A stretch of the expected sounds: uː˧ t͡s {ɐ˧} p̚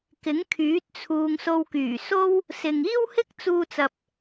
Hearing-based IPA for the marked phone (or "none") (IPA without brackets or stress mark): ɐ˨